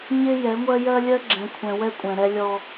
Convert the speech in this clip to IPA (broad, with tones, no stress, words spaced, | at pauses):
ɲɪ˦ jɛ˨˦ŋʷɜ˦ jɜ˦lʲɜ˦ɡ͡ǁɛ̃˨ kʷʰɛ̃˨ wɛ˦kʷʼɛ̃˨ ɾɛ˦lʲɔ˦